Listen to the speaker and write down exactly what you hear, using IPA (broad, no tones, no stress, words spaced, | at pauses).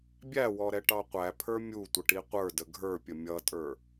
bʲæwɔɾɛʈɑ qʷæpʰə˞ mʲutʷəʈi qʷə˞də ɡʱə˞pʲə mʲʌtʼə˞